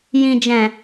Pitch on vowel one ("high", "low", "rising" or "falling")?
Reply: low